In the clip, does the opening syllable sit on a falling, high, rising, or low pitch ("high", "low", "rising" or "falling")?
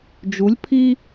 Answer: rising